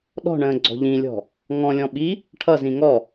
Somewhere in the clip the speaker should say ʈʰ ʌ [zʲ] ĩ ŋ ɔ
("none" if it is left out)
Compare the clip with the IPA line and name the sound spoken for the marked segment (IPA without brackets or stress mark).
z